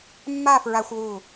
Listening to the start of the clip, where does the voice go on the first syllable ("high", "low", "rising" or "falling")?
falling